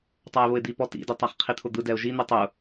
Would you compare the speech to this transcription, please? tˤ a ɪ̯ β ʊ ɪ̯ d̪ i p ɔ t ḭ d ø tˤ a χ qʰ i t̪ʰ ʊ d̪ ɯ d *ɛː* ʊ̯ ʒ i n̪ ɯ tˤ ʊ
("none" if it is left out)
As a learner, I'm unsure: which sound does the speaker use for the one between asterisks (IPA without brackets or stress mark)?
ɛ